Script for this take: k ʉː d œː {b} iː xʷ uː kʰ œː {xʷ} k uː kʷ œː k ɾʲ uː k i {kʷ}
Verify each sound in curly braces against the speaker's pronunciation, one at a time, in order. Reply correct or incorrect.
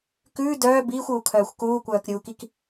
correct, correct, incorrect

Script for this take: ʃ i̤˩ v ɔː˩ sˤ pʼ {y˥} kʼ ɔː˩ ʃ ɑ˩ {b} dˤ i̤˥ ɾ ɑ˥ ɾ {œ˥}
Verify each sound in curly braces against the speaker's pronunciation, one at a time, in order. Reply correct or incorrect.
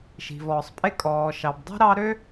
incorrect, correct, incorrect

